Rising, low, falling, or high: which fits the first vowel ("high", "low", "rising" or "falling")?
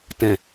low